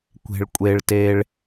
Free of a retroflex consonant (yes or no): no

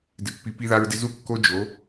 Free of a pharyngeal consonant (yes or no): yes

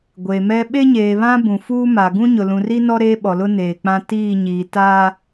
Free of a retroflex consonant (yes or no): yes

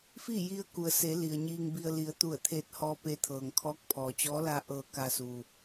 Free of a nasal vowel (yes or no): yes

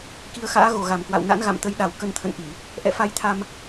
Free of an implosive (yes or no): no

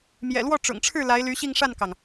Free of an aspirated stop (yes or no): no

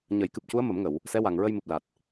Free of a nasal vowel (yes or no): yes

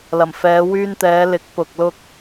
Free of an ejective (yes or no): yes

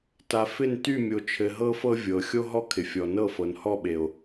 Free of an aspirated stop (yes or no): no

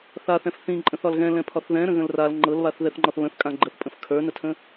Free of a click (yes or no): no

